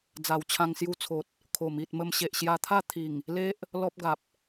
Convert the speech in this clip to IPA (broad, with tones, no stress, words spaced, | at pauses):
d͡za˨˩wt͡ɕʰã˧ŋsju˧t͡sʰo˨t̚ | kʰo˨˩mi˨t̚ mə˧mɕe˨ʔɕja˧t̪ʰa˥˧ t̪ʰi˨˩ŋ | le˦ʔ | lɔ˦p̚ɡa˨p̚